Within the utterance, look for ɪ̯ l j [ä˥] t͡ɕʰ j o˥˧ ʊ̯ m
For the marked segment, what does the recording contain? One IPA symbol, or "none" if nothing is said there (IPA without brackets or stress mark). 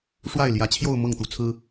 ä˧˥